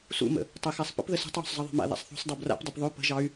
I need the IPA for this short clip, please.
sṵmə̰ | tˤɛxasˤpə̰p ðəso̤tˤwo̤sˤzˤʌ ðˤɑ̤ma̰ ða̰sˤθo̤sˤdˤo bra̰pdˤʌp ðˤɵ pə̤ʒɑy̯

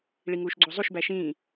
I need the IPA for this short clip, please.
ɭiŋuːʃɡ͡ǀozˤuʃ bæʃĩː

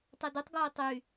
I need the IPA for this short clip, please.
tˤodutˤ ɡoːtˤy

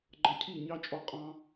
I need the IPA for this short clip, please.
ɡ͡ǃʌ˧cʰi˦˨ ɲɑ˦t͡ʃʼɔ˧ qʼɑ̃˧

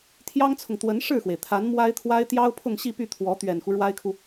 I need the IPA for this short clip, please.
t̪ʰjɑ˥ŋt͡sʰʊ˨ŋ t̪wə˧˥n ʂɻ̩˥˩xwe˩ɪ̯t̪ʰa˧˥n mwa˥ɪ̯t̪ʰwa˥ɪ̯ t̪jɑ˥ʊ̯pʰʊ˥˧ŋɕi˥˧py˥˩ t̪ʰwɔ˧˥ t̪ɥɛ˨˩nxu˦ ɻwa˥ɪ̯kʰu˨

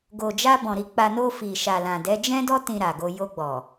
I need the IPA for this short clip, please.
ɡo˨d͡ʒa˧bɔ̃˨ ɾi˨˦k͡pa˧ no˧ fi˨ʃa˨lã˨dɛ˨˦ d͡ʒɛ̃˦dɔ˦ tĩ˧ɾa˨ɡo˧ jo˧ɡ͡bɔ˨

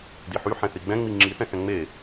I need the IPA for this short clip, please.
diħy ħɛ̃θiɡ͡bɛ̃ ŋ͡miŋ͡ǁiθɛ̃xɛ̃ ŋ͡me

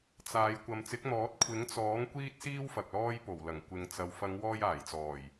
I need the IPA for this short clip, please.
t͡saː˨˧j kʷɐ˨m t͡sɪ˨˥k̚n̪ɔː˨˥t̚ kʷʰɪ˨˥ŋ t͡sɔː˨˥ŋ kʷiː˥t̚siː˥w fɐ˨k̚lɔː˥jpo˨˩wlɐ˨˩ŋ kʷɪ˨ŋt͡sɐ˨˧w fɐ˨˧ŋwɔː˧jaː˨˩jt͡sɔː˨˩j

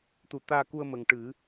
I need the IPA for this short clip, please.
t̪u˨˩˦t̪aː˧ku˧ə̯ mə˨˩ŋʈɨ˨˩˦

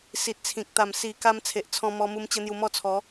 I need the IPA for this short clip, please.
si˨t̚t͡sʰĩ˨k̚t̪a˨˩m si˨˩ka˧m t͡sʰe˨ʔt͡sʰɔ̃˧mɔ˧mu˧m t͡ɕə˦n̪ju˧mɔ˥˧t͡sʰɔ˨˦

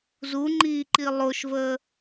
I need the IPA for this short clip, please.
zuŋ͡ǃiːǃi lˠoʃvəː

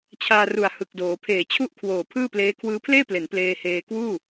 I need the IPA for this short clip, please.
t͡ɕʰaː˧ru˨˩a̯hɯ˨˩k̚doː˩˦ pʰeː˨˩t͡ɕʰu˥˩ʔ kʰwoː˨˩ pʰɯː˥˩pleː˦˥ kʰwɯː˦˥pʰleː˥˩ple˩˦n pleː˧heː˧ kwuː˥˩

